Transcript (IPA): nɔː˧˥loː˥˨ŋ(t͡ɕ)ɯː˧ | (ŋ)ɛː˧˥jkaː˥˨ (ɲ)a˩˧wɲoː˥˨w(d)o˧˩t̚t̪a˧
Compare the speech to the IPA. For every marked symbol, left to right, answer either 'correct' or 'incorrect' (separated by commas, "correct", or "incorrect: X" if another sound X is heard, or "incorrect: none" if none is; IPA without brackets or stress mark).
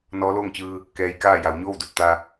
correct, incorrect: k, incorrect: j, correct